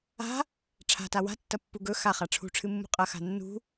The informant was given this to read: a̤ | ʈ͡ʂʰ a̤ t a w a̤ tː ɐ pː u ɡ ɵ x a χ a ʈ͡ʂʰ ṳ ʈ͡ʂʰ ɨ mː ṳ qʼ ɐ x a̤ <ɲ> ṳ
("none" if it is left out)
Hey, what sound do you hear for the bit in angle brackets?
nː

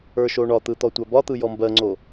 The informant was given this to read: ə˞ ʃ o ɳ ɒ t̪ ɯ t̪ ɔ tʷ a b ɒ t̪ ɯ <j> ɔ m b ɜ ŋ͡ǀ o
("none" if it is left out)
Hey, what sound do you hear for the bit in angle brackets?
j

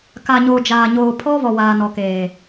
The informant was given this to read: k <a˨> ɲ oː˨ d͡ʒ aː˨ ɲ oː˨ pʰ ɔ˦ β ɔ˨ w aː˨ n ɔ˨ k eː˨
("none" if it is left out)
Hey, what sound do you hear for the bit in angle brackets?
a˨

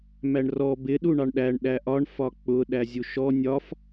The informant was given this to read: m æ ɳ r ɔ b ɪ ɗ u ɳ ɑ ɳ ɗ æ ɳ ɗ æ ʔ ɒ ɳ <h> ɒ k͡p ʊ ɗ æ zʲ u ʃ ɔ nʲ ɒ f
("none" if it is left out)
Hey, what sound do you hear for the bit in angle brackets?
f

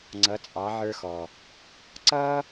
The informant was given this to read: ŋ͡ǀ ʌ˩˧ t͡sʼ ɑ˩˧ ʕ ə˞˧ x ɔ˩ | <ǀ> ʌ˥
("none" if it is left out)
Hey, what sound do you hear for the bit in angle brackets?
ǀ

